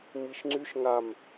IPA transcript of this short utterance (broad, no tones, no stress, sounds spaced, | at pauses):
m i ʃ ŋ͡ǀ y ʃ ŋ a m